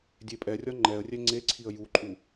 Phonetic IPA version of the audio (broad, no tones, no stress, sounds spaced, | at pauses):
dʲ e pʼ ɛ rʲ ɒ ŋ͡ǃ ɛ ə̯ rʲ ɛ ŋ͡ǀ e ǀʰ i ə̯ j u ǃʼ u